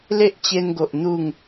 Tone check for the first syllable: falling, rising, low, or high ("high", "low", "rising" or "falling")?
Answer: high